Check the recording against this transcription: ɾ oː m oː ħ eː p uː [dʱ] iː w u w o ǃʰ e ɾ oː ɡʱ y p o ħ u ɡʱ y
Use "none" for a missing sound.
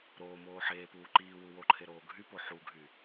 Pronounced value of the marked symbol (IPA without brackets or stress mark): ǃ